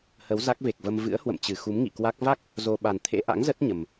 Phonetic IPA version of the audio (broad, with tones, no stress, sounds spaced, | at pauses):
h ə˨˦ w z a˦˥ k̚ v e˨˩ k̚ v ə˧ m v ɨ̰˧˥ ə̯ h w ə̰˧˨ m t͡ɕ ɨ˧˩ x u˨˦ m ŋ ḭ˧˨ k w a˦˥ k̚ v a˦˥ k̚ | z o˧ ɓ a˨˩ n t̪ʰ ḛ˧˥ ʔ a̰˧˥ ŋ z ə˦˥ t̚ ɲ ə˨˩ m